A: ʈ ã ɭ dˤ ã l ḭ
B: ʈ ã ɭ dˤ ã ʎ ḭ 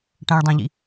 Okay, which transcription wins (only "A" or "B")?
B